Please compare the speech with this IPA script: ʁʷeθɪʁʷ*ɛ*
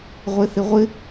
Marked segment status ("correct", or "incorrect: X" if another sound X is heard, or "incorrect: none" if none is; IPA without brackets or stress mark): incorrect: ɪ